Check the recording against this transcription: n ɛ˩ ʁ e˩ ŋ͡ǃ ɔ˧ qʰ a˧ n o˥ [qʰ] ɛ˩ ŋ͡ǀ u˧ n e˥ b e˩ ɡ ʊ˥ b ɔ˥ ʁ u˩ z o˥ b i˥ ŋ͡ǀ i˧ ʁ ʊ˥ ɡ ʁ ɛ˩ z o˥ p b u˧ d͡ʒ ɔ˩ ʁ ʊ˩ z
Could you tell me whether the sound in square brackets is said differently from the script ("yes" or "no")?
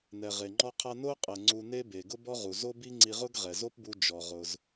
yes